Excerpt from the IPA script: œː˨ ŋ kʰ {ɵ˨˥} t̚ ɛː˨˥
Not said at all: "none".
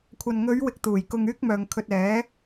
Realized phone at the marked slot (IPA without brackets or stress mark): ɵ˧